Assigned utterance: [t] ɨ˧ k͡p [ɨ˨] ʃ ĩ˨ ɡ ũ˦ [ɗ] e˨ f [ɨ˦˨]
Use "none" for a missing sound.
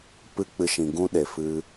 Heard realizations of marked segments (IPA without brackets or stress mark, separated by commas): p, ɨ˧, ɗ, ɨ˧